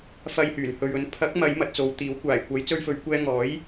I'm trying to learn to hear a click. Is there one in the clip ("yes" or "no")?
no